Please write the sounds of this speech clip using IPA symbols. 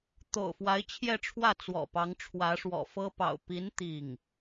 t̪o̰˨˩ʊ̯fwa˧˥ɪ̯t͡ɕʰjɛ˥˧ʈ͡ʂʰwä˥˩ t͡swɔ̰˨˩pɑ˧˥ŋʈ͡ʂʰwä˧˥ ʂwɔ̰˨˩ fɤ˥pɑ̰˨˩ʊ̯ pi˧˥n t̪i˥˩ŋ

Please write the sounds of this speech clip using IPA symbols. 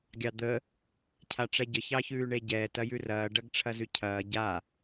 ɡʲɑd̪ə | cʰaʈ͡ʂɛɟə çɑçʉːɳeɟɛːt ɐjʉrɐː ɖɐɡʈ͡ʂʰɐzʉcʰɐː ɟa

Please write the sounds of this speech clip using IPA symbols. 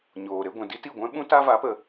ɲoː˨ɾe˦ ɡʷɛ̃˨di˦ ti˦˨ɡʷɛ̃˦ɓũ˦ ta˦va˨˦pə˨

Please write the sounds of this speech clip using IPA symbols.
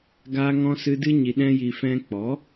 ɡaː˦ŋɔ̃˦sɨ˦ dɨ˦ɲi˧ ɗɛ̃˦ji˧ fɛ̃˧k͡pɔ˨˦

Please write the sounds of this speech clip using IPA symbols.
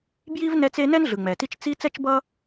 bji˥vnɛ˦t͡se˦ nɛ˥nɮɯ˩ ŋ͡mɛ˩ti˦t͡ʃ t͡si˥ t͡sɛ˥t͡ʃbʌ˥

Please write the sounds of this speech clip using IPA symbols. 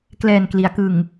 klɛː˨˩n kli˩˦a̯kɯ˨˩ŋ

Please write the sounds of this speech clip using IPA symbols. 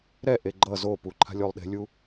ɾɛʔe ɡ͡ǃʌ zopu ǃʰa̤lʲolˠɗe̤lʲu

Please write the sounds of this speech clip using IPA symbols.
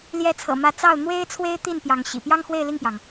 ljɛ˧˥t͡sʰɤ̰˨˩ mä˧˥t͡sɑ˥˩ʊ̯ n̪we˥ɪ̯t͡sʰwe˥ɪ̯t̪i˥˩n pjɑ˧˥ŋɕḭ˨˩ pjɑ˥ŋxwe˥˧ɪ̯li˥˩ŋpjɑ˩ŋ

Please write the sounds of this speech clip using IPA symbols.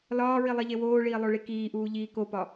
lɒːɹi lˠiʎewoːɭiː lˠoɭikiːʔuː ʎiːkopɒ

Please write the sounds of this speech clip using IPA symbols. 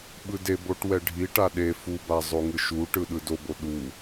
ɓɯdeboʈ wɛɖʱiʈa ɗe fuba zˤoŋɯʃuʈɯ ɗɯdobo ɗu

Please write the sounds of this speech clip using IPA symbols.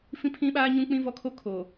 fĩ˦pʰĩ˦ɓaː˦ ɲũ˦k͡pĩ˦vɔ˦kʰo˦ kʰo˨

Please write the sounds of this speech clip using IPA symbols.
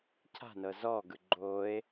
cʰa̤nɤ zɔɡɯ ɡ͡ǃoe̯

